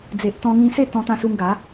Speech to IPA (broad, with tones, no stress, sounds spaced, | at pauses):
d͡z e˨ ʔ t̪ ɔ̃˧ ŋ ĩ˧ s e˥˧ t̪ ɔ̃˧ t̪ ã˧ s u˧ ŋ ɡ a˨˦